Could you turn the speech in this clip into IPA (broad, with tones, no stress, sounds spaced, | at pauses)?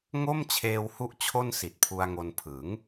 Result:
ŋ o˥˩ m t͡ɕʰ eː˧ w h u˦˥ ʔ t͡ɕʰ o˥˩ n s i˨˩ t̚ pʰ u˧ a̯ ŋ o˧ n pʰ ɯ˩˦ ŋ